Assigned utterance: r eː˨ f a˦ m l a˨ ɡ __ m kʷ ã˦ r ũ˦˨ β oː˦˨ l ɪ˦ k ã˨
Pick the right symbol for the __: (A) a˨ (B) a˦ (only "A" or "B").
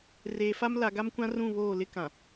B